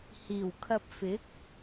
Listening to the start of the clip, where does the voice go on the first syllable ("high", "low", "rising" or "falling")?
low